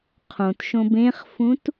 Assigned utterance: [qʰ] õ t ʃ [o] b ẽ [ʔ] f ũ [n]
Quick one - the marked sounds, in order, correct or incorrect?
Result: correct, incorrect: õ, incorrect: χ, incorrect: t

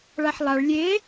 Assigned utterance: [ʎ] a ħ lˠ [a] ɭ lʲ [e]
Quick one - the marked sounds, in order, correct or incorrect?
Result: incorrect: ɭ, correct, correct

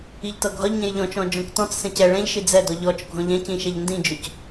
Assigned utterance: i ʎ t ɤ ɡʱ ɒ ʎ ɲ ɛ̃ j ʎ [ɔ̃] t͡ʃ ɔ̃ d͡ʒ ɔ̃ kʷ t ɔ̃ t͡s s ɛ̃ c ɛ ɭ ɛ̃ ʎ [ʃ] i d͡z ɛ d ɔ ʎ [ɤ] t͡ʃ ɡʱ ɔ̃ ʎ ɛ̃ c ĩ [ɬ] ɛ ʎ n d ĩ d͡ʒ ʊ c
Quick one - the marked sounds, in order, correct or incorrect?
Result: correct, correct, incorrect: ɔ, incorrect: ʃ

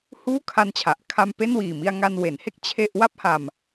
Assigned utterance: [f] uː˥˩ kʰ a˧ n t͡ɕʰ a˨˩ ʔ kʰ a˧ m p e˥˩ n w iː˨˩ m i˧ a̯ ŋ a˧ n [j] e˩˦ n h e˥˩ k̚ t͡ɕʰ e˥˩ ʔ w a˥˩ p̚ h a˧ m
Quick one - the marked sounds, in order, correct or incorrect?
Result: incorrect: h, incorrect: w

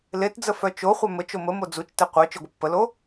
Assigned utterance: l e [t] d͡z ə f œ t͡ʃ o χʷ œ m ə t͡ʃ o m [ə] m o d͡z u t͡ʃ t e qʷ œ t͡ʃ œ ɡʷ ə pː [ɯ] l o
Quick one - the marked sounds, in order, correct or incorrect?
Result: correct, correct, incorrect: ə

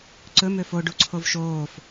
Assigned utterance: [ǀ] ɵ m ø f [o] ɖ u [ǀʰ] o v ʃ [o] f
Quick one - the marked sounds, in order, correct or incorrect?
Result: correct, correct, correct, incorrect: oː

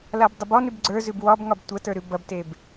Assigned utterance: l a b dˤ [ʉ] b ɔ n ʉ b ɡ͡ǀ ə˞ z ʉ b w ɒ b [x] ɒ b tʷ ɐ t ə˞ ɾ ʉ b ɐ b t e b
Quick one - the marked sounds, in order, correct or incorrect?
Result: incorrect: ə, incorrect: ŋ

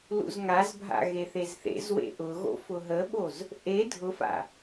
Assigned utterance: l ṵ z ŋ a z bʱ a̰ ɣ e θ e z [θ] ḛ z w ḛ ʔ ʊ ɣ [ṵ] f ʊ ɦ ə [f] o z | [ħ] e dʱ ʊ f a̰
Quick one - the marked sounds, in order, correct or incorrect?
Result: correct, incorrect: o̰, incorrect: ɓ, incorrect: ʔ

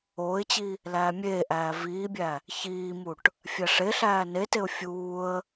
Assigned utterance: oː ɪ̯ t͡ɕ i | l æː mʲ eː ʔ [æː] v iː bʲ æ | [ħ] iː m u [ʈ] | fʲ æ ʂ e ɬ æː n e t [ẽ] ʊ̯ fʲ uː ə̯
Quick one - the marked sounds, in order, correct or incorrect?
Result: correct, incorrect: ç, correct, incorrect: e

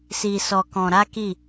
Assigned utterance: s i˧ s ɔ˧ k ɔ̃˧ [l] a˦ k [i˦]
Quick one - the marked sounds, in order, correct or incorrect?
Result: incorrect: ɾ, incorrect: i˦˨

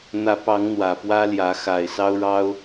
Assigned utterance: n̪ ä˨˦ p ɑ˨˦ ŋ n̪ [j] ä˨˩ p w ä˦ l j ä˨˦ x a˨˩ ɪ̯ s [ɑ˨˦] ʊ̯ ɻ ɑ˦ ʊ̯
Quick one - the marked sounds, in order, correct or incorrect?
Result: incorrect: w, incorrect: ɑ˦

